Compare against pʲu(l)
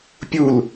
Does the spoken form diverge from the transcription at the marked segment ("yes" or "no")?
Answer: no